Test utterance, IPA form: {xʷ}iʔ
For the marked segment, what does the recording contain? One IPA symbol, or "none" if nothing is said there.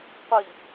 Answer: qʷ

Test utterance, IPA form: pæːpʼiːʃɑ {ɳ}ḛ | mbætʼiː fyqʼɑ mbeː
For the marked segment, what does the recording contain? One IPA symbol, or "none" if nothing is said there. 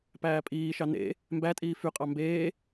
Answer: n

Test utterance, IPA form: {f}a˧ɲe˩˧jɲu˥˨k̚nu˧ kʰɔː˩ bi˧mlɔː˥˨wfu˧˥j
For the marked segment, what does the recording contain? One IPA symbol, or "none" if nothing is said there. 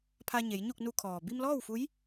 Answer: pʰ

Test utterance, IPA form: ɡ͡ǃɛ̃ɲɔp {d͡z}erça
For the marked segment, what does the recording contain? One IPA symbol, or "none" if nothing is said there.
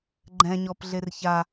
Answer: ɮ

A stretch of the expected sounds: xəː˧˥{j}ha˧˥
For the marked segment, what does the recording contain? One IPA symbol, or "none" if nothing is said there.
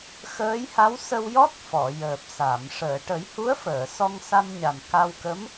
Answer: j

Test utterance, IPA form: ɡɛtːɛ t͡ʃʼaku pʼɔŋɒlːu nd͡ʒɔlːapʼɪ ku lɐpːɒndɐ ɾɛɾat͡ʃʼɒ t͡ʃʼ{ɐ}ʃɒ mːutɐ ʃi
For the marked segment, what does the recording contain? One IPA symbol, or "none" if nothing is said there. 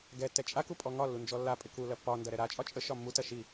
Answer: ə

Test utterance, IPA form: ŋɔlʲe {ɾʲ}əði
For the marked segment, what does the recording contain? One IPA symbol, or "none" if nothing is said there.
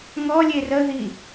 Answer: r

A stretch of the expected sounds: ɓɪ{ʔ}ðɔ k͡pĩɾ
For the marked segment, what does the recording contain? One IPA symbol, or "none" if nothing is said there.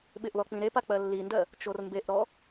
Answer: ʔ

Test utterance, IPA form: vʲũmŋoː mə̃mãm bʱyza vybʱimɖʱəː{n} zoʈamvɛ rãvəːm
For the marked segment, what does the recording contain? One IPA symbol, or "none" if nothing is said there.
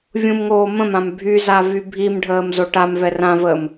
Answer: m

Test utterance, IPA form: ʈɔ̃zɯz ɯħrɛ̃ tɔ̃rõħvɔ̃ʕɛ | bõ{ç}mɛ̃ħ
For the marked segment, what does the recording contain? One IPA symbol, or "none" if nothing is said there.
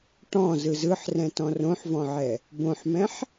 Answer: ħ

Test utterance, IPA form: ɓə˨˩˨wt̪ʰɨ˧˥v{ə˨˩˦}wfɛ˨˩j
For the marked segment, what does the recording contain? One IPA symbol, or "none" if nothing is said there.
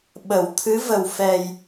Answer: ə˨˩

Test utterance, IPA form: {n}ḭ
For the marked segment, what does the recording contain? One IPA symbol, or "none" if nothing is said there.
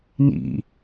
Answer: n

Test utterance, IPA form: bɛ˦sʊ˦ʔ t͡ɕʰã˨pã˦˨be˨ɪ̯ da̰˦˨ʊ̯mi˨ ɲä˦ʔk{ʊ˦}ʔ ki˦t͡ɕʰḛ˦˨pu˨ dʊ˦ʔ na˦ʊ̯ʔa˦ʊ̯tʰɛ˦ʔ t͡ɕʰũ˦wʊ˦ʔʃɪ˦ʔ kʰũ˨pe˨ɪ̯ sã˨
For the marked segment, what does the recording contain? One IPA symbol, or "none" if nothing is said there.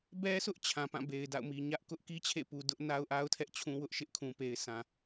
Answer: ʊ˦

